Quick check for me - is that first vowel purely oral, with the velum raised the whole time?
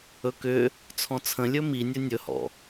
yes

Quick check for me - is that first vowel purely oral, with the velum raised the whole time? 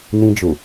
no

